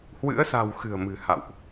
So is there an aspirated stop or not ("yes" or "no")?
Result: no